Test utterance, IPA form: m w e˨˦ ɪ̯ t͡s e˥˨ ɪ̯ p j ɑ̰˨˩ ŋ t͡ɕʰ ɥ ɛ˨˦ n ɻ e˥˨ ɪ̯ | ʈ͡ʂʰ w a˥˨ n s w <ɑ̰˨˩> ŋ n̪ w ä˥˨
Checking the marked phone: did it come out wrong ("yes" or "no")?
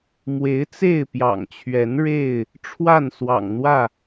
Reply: no